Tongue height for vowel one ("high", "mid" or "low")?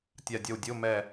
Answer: low